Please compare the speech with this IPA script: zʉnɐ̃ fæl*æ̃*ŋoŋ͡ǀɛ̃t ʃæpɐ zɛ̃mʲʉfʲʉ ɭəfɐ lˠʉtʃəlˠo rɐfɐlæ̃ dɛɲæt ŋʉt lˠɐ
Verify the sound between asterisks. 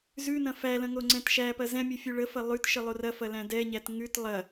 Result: incorrect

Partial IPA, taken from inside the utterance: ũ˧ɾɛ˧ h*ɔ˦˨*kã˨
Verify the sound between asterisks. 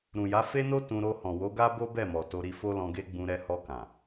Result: incorrect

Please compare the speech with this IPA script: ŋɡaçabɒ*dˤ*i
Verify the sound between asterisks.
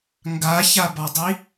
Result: correct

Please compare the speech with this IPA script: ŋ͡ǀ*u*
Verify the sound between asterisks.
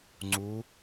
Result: correct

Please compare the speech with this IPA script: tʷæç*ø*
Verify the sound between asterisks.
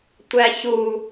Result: incorrect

